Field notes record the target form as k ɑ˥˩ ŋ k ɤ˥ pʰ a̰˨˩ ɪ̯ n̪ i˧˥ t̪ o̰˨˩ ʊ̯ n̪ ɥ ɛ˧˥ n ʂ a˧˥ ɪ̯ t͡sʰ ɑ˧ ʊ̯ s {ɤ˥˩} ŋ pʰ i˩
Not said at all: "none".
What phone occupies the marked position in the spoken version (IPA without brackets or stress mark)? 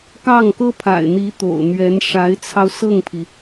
ɤ˥˩